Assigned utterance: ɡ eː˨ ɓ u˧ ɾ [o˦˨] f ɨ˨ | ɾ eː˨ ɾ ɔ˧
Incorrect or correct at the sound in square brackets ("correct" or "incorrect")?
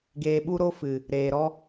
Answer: incorrect